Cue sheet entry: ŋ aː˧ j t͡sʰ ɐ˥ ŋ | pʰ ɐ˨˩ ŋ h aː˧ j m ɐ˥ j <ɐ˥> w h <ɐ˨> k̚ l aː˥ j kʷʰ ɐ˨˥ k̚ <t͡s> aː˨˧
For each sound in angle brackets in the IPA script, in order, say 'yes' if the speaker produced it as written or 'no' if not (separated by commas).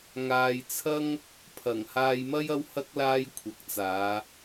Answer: yes, no, yes